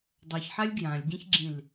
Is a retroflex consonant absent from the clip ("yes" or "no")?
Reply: yes